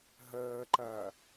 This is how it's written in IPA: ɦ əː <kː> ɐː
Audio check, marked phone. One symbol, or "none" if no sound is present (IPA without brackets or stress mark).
ǃ